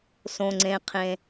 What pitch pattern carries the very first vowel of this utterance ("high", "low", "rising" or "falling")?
low